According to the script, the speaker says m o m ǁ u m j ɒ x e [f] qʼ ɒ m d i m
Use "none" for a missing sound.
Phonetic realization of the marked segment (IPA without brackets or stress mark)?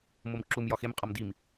m